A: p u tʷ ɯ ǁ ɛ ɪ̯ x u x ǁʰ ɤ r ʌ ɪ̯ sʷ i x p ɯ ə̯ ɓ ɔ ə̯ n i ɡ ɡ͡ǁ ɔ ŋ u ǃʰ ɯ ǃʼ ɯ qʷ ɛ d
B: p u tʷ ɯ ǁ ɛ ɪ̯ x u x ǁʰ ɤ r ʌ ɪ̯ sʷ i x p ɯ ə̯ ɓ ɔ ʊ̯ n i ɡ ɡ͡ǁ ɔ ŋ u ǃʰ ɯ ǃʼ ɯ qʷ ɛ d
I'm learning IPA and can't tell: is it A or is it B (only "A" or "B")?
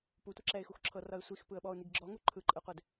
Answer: B